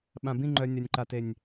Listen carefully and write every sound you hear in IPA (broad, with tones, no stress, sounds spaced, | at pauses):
ɓ ã˨ b ĩ˦˨ ŋ͡ǃ œ˨ nʲ a˨ nʲ ǃ a˨ t e˨ nʲ